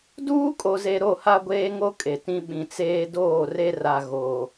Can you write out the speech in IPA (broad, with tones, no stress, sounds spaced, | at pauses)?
d uː˦ kʼ o˨ z e˨ ɾ o˦˨ h a˦ ɡʷ eː˦ ŋ o˦ kʼ e˨ t ĩ˦ ɓ ĩ˨ t͡s eː˦ d oː˦˨ r e˦ r a˨ ɣ o˨